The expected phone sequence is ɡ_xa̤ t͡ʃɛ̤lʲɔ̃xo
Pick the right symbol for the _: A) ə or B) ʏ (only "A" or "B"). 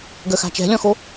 A